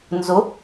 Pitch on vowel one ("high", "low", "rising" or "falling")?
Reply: rising